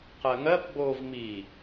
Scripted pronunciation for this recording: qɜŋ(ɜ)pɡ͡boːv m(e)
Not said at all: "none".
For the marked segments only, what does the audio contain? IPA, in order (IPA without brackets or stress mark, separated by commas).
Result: ɜ, i